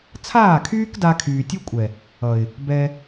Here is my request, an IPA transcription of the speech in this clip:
t͡sʰ aː˦˨ kʰ yː˦ k d a˧ kʰ yː˨ tʲ ʌ˦ kʷʼ ɛ˨ | ʌ˨ ɪ̯ | b ɛ˧

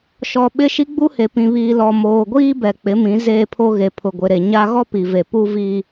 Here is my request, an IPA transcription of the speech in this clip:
ʃ ɔ˨ ɓ ɪ˦ ʃ i˦ ɡ͡b u˦ h e˨ p ĩ˨ β iː˨ l ɔ˨ m oː˨ ɡʷ iː˦ b ɛ˨ k͡p ɪ˨˦ m ĩ˨˦ z eː˦ pʰ o˦ ɣ e˨ pʰ ʊ˨ ɡʷ ɪ˨ ɾ e˨ ɲ a˦ ɣ ɔ˦ p i˨ v e˨ p u˦ v i˦

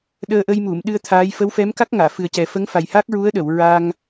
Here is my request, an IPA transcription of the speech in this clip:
ɗ əː˧ ʔ ə˧ j m u˨˩˨ m ɗ ɨ˧ ə̯ t̪ʰ aː˧˥ j f ə˧˥ w f ɛ˧˥ m k a˦˥ k̚ ŋ aː˨˩˨ f ɨ˨˩ ə̯ c ɛ˨˩ f ə˧˥ ŋ f a˨˩ j h a˦˥ k̚ ɹ u˧˥ ə̯ ɗ ə˨˩˨ w ɹ a˧ ŋ

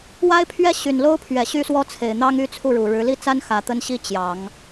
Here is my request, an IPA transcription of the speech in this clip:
w a˥ ɪ̯ pʰ ɥ ɛ˥ ɕ y˨˩ n l o˥ ʊ̯ pʰ ɥ ɛ˨˩ ɕ y˥ s w ɔ˥ t͡sʰ e˨˩ ɪ̯ n̪ ɑ˥ ŋ y˥˧ t͡sʰ u˥˩ ɻ u˨˩ ɻ ɻ̩˧˥ l i˥˩ t͡s a˥ n x ä˧˥ t̪ ə˥ n ɕ i˥ t͡ɕ j ɑ˨˩˦ ŋ

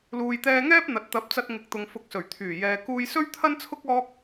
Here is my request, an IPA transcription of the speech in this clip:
l uː˨ j t̪ ɛː˧ ŋ ɛː˥ p̚ n̪ ɐ˨ t̚ t̪ ɐ˨˥ p̚ t͡s ɐ˧ t̚ ŋ ɪ˨˥ k̚ t̪ ʊ˨ ŋ f ʊ˨˥ k̚ s ɵ˨˩ ɥ t̪ʰ yː˨˩ j ɛː˨ k uː˧ j s ɵ˥ ɥ t̪ʰ ɐ˥ n t͡sʰ ʊ˥ k̚ ɔː˥ k̚

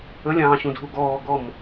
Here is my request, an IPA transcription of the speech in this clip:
ə lʲ ɑ̃ː ɕ ũ dʱ u ɡ ɔː ɡ ɔ m

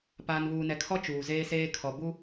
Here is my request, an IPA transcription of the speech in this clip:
p aː˨ n β uː˨ n ɛ˨ kʰ ɔ˦ t͡ʃ uː˨ z eː˦ s eː˦ kʰ ɔ˨ b u˦

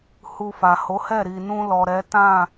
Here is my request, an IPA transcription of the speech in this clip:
h u˧ f a˨ h o˨˦ h ɛ˦˨ ɾ i˨ n ũ˧ l ɔ˨ ɾ ɛ˨˦ t ã˦˨

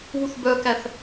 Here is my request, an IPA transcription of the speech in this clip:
β u θ b œ k æ θ

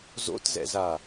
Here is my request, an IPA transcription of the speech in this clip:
z o̰ t z ɛ̰ z a

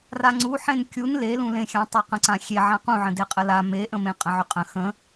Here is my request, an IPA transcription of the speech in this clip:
r a ŋ͡ǀ u ħ ẽ n kʲ u n l e l ũ l ẽ xʲ ã tˤ e q ə̃ ǀ ã xʲ e ʕ ã q ũ ʕ ə̃ d e qʼ ə l a m e ʔ ə̃ m ẽ qʼ ə̃ ʕ ʏ qʼ ə̃ x ə̃

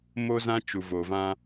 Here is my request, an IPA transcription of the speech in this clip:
m o˦ z ã˦ t͡ʃ u˨ v o˨ v ã˦

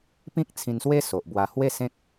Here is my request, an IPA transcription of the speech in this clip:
p ĩ˦ k̚ t͡sʰ ĩ˧ n s w e˦ s o˨ ʔ b w a˧ h w e˥˧ s ẽ˦ k̚

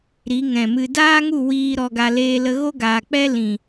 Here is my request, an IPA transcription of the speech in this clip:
ɾ i˨˦ ŋ ɛ̃˨ m ɨ˧ d aː˦ ŋ u˦˨ w iː˧ ɾ ɔ˧ ɡ a˧ l eː˧ l ə˧ ɣ o˦ ɡ aː˨ k͡p ɛ˦ l ĩ˨

